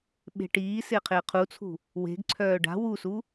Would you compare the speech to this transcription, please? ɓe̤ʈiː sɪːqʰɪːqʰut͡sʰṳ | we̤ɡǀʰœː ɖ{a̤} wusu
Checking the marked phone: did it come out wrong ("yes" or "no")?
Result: no